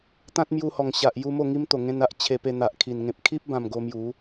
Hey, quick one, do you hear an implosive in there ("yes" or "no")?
no